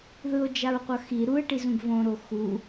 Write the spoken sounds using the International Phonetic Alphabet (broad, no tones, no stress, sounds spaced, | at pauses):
ð ɯ o̯ d͡ʒ a ɹ qʷ ʌ x i ɾ u e̯ ʈ i z ũ ɡ v õ ɾ o x u